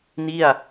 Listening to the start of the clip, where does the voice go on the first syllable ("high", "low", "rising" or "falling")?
falling